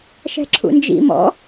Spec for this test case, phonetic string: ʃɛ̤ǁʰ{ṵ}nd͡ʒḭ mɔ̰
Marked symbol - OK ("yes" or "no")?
yes